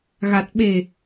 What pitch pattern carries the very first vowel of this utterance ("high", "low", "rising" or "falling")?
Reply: low